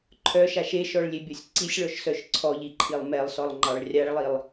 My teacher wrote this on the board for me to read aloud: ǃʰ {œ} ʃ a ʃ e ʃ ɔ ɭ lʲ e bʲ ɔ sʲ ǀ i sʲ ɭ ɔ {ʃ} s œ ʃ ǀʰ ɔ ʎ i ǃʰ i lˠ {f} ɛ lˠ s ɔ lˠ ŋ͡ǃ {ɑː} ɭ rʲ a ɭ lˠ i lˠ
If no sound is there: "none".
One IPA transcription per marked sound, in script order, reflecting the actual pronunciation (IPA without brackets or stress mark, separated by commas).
œ, ʃ, m, ɑ